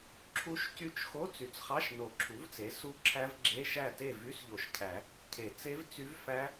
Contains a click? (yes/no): yes